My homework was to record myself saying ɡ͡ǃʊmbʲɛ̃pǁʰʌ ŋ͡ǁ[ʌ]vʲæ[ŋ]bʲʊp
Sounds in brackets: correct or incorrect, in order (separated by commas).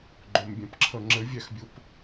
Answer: incorrect, incorrect